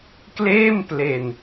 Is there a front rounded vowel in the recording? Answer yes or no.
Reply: no